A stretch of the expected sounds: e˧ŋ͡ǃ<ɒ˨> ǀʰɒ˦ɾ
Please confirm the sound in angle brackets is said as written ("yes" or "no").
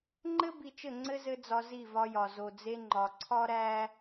yes